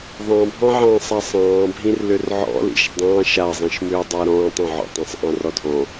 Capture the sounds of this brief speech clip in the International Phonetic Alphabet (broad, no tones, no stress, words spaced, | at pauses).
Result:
ðˤɑ̃bʱɑ̃ʕɑ̃sˤa sˤɑ̃ːbʱĩr lʏrʕɔ̰lḭʃ dˤɑ̃ ʃazˤĩʃmʏːdˤa ɾɔ̃ːtˤ ɔ̃ʕɔ̰tˤãsˤ ʔɑ̃rɔdʱɔ̃